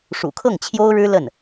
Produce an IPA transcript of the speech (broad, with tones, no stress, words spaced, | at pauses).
ʂṵ˨˩kʰɤ˥˩ŋt͡ɕʰjo˥ʊ̯ɻɻ̩˥ lə˥˩n